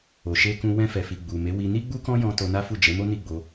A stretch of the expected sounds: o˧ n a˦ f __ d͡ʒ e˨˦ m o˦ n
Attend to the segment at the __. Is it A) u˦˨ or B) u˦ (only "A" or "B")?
A